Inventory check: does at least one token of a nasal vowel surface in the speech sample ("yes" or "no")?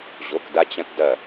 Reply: yes